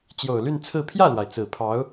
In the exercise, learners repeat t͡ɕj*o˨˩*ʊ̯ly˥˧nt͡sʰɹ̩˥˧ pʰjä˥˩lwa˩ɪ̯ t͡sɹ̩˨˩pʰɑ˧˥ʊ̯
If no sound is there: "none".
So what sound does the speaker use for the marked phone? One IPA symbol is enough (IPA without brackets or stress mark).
o˨˩